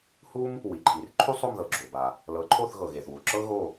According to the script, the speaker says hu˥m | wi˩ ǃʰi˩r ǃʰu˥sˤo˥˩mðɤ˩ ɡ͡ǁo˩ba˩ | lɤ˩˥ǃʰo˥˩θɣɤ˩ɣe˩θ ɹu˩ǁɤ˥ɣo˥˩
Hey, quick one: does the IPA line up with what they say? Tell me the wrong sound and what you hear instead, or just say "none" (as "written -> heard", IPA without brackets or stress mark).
ɹ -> w